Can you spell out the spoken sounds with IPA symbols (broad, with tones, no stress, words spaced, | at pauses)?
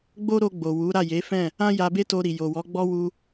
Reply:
ɡ͡bo˦ɾo˧ ɡ͡bo˨ wu˨˦ɾa˦˨je˨˦fɛ̃˦˨ | ã˧ ja˧be˦to˧ɾi˨ jo˨wɔ˨˦ɡ͡bɔ˦ wu˧